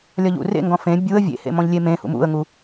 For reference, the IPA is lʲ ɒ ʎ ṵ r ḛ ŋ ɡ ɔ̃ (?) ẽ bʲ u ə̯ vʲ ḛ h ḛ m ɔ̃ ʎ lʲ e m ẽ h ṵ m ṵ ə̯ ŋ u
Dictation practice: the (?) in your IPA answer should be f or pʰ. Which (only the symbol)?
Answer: f